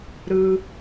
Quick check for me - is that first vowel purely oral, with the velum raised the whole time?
yes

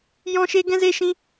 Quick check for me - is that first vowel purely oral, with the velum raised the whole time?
no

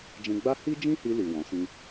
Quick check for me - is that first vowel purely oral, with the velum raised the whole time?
no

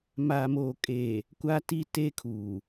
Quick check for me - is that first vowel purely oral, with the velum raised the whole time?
yes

